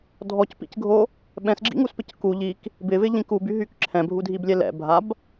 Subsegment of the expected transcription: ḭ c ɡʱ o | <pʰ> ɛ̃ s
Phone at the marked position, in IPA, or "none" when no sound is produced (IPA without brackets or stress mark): ɓ